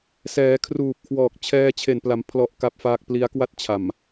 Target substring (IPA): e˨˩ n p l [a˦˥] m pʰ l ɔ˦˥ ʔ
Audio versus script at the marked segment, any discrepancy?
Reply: yes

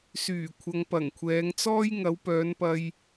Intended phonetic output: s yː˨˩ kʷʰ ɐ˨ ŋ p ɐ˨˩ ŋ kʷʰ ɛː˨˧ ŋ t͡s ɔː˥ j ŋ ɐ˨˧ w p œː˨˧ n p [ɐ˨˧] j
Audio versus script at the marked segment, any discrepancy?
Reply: yes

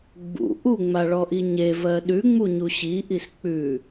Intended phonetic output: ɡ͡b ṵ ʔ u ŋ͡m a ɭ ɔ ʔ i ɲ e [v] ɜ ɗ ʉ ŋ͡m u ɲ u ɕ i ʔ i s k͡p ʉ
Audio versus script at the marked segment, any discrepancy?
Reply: no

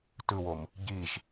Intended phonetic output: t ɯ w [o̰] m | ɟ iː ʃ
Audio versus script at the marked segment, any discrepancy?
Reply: yes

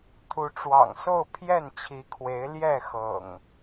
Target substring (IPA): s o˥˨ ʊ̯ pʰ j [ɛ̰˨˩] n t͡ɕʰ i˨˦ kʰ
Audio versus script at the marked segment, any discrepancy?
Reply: yes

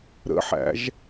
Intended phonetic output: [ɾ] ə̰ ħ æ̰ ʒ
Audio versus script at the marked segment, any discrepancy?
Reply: no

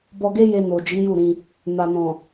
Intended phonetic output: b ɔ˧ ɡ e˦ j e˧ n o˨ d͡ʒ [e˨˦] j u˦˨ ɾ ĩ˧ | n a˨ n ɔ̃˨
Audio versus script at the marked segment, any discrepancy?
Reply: yes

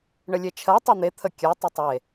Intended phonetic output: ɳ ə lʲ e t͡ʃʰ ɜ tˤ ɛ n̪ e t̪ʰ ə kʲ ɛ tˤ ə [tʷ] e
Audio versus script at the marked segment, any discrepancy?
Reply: yes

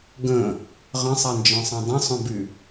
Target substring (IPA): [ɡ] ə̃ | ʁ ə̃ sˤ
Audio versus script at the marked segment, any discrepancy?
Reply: no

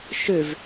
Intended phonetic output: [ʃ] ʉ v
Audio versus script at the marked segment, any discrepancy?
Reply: no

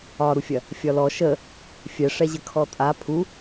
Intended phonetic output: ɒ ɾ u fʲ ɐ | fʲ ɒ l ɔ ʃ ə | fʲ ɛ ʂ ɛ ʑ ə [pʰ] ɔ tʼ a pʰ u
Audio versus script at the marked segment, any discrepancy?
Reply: yes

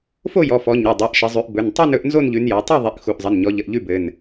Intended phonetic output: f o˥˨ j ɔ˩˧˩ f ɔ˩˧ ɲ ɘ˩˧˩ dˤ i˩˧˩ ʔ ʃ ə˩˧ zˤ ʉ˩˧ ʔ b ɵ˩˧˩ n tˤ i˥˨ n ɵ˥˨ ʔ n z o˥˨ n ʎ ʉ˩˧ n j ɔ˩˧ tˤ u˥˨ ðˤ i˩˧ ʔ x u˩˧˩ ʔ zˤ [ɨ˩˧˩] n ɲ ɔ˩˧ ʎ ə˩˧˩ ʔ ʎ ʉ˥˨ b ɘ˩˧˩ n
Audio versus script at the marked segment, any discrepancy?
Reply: yes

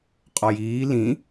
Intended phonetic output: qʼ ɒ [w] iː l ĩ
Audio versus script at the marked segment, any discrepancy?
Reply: yes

